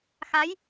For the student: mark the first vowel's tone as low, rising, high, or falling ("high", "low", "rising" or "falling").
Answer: rising